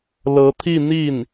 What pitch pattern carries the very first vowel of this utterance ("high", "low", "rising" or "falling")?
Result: rising